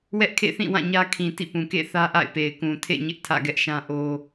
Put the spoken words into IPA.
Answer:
w ɛ˦ ʔ kʰ ḛ˦˨ θ ĩ˦˨ w ã˦˨ ɲ ä˦ kʰ ĩ˨ t ḭ˦˨ p ũ˨ k ḛ˦˨ θ ä˦ ʔ a̰˦˨ ɪ̯ p e˨ ɪ̯ k ũ˨ tʰ ḛ˦˨ ɲ ɪ˦ ʔ tʰ ä̰˦˨ ɡ ɛ˦ ʔ ʃ ã˦ ʔ o˦

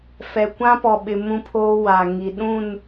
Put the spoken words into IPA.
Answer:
f ɛ˨ kʷ ã˦ p ɔ˨ ɓ ɪ˨ m ũ˦ pʰ oː˦ w a˨ ŋ i˨ ɗ ũ˦˨ n

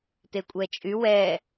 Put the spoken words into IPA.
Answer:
t e kʷʼ ɛ t͡ʃʼ y w ɛ

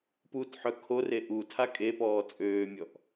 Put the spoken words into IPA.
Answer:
p u t ħ œ kʰ o r e ʔ u tʰ a kʼ e p ɔː t͡sʼ øː mʲ ɔ ʔ

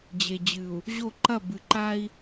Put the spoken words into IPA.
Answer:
d͡ʑ e˨ d͡ʑ ɨ˨ u̯ | ʑ o˦˨ ǃ ɐ˦˨ b ɨ˨ ǃ a˦ i̯

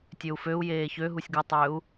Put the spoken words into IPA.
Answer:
tʲ ø u̯ f ø u̯ j eː ç ø ɦ u sʲ ɡ u tˤ øː u̯

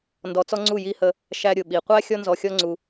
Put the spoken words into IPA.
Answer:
n d ɔ˧ t͡s ɔ˦ ŋ͡ǀ u˦˨ j i˧ h ə˧ | ʃ æ˧ ɾʲ ʊ˨ ɓ i˨ qʷ æ˦ xʲ ɔ˦ n z ɔ˧ xʲ ɔ˦ ŋ͡ǀ u˧

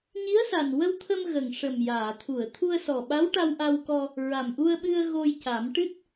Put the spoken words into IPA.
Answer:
ɲ i˧˥ ə̯ s a˨˩ n w ə˧ w t̪ʰ ə˧ m ɣ ə˨˩ ŋ ʂ ə˨˩ m j aː˨˩˨ t̪ʰ u˨˩˨ ə̯ t̪ʰ u˧ ə̯ s ɔ˨˩ ɓ a˧˥ w ʈ a˧ w ʔ a˧ w k ɔ˧ | ɹ a˨˩ m ʔ u˧ ə̯ ɓ ɨ˧ ə̯ ɣ o˧ j c a˨˩˦ m ʈ ɨ˦˥ t̚

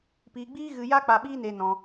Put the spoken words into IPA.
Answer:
p iː˧ ɡ͡b iː˦ ɣ ɨ˧ j a˦ k͡p a˧ ɓ iː˦ n e˧ n ɔ̃˧

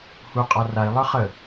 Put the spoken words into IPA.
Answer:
h u qʼ a r a i̯ lˠ ə˞ χ ə

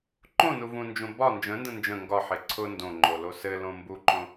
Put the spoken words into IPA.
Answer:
ǃ õ n u v ũ n d͡ʒ õ b ɒ n d͡ʒ ə̃ n d ə̃ n d͡ʒ ə̃ ŋ ɡ ɒ ħ e ǀʰ ʊ n d õ ŋ͡ǃ o l o s ɘ l õ m b u ǃ õ

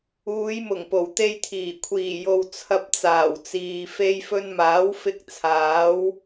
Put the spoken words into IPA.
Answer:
uː˨˧ j m ʊ˨˩ ŋ p o˨˩ w t̪ e˧ j t̪ʰ iː˨˩ kʷʰ iː˨˩ j o˨ w t͡sʰ ɐ˧ p̚ t͡s aː˨˩ w t͡s iː˨ f e˧ j f ɵ˧ n m aː˨˥ w f ɪ˧ k̚ t͡sʰ aː˨˥ w

